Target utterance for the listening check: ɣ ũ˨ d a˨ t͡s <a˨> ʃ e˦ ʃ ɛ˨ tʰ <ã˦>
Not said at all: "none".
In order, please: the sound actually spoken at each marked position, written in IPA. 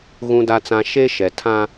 ã˨, ã˦

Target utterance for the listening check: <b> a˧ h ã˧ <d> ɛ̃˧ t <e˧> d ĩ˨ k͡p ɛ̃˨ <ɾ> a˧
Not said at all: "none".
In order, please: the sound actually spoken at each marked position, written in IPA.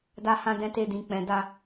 d, d, e˧, d

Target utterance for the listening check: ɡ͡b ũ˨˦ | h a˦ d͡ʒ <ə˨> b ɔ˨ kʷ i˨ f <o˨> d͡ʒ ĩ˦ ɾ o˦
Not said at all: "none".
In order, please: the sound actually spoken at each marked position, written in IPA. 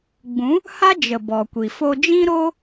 ə˨, o˧

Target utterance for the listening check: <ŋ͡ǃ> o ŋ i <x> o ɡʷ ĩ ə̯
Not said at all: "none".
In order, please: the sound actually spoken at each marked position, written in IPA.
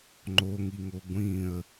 ŋ͡ǃ, ŋ

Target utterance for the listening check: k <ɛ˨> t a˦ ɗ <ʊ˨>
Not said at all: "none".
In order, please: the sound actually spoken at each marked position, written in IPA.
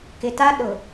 ɪ˨, ʊ˨

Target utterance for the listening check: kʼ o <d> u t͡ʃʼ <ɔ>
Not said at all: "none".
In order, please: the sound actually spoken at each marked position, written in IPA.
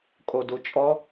d, ɔ

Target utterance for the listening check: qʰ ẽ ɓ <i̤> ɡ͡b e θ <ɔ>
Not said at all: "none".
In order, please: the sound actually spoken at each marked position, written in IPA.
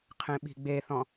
i̤, ɔ̃

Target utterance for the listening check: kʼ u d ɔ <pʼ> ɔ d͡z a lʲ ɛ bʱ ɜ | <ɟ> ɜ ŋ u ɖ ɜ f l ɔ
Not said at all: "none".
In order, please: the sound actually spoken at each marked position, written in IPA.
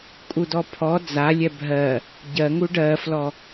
pʰ, ɟ

